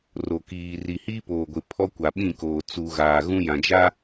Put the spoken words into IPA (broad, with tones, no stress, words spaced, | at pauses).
ro˨ kiː˨ri˨ hiː˦poː˨ɡʷɪ˨ pʰɔ˦kʷa˨ ɓĩ˦˨koː˨ t͡su˨ɣaː˨ ɣũ˦jã˨d͡ʒa˦